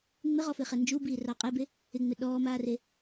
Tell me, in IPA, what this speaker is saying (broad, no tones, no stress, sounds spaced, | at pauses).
ŋ͡m ɪ ʁ ɔ f ɪ χ ɛ n d͡ʒ u b iː r ɑ qʼ ɛ b e | ɪ ŋ͡m ɪ ɗ ɔː m aː r e